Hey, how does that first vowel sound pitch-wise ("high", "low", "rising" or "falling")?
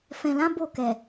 low